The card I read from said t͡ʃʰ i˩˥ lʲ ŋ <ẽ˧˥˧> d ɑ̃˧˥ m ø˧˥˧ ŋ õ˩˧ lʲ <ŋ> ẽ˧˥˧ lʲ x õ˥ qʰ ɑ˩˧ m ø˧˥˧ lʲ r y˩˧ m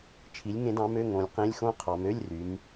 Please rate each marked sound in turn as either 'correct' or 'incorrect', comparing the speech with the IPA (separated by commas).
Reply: incorrect, incorrect